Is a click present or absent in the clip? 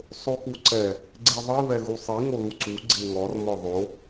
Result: present